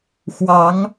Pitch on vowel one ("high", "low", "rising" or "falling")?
rising